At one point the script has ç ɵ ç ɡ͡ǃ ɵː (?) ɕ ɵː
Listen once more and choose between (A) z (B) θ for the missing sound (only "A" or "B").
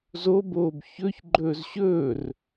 A